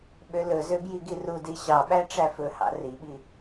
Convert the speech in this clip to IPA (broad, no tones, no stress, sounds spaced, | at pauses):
ɓ ø l ɵ z ø b j i ɡ i r u d i ɕ ɑ ɓ æ ʈ͡ʂ æ f ɵ h ɑ̰ r i ɓ i